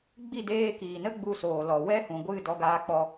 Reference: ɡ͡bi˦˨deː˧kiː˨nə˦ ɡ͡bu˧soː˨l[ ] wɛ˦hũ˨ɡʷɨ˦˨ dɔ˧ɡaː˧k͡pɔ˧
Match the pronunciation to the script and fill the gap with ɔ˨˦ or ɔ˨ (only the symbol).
ɔ˨